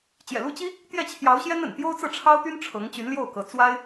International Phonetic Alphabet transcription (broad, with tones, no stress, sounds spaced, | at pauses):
t͡ɕ j ɛ̰˨˩ l u˥˩ t͡ɕ i˥ | t̪ j ɛ˥˩ t͡ɕʰ j ɑ˧˥ ʊ̯ ɕ j ɛ˥ n ə̰˨˩ n t̪ j o˥ ʊ̯ t͡s ɤ˥˩ ʈ͡ʂʰ ɑ˥ ʊ̯ t̪ y˥ n ʈ͡ʂʰ ɤ˧˥ ŋ t͡ɕ y˧˥ n l j o˥˩ ʊ̯ k ɤ˧˥ t͡s w a˥ ɪ̯